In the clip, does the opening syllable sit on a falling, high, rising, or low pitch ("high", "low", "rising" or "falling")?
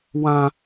high